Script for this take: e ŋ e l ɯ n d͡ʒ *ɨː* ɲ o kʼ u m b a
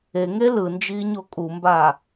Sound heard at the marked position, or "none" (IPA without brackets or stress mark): iː